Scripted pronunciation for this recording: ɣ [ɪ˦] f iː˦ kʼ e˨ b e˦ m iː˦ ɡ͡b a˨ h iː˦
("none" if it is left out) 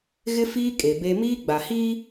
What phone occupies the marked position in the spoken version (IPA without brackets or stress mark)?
ɪ˦